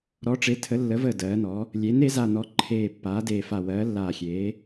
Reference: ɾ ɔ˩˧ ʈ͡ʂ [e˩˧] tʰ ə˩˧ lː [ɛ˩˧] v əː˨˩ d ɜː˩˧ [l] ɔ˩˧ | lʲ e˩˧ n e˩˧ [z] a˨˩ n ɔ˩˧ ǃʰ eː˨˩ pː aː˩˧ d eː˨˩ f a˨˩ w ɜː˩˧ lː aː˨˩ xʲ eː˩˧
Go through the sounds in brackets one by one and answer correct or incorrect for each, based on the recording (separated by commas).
correct, incorrect, incorrect, correct